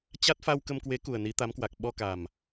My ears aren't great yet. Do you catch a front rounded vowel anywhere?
no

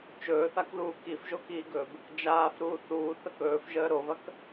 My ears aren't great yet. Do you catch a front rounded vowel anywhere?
no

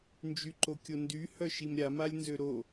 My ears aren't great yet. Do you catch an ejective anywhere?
no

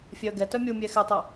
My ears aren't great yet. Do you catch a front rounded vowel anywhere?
yes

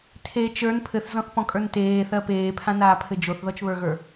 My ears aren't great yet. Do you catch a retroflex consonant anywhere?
no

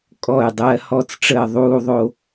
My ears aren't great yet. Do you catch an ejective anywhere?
yes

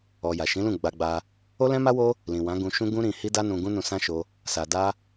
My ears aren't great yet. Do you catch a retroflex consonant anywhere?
no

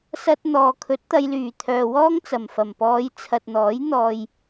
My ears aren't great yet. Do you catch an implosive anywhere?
no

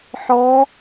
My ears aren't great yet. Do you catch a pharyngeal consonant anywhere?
yes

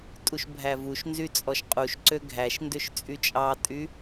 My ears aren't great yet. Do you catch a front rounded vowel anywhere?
yes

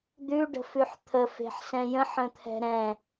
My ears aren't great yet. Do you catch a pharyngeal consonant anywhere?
yes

